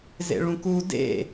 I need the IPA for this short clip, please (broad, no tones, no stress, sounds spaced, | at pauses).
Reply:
z ḛ ɭ ũ k u d ḛ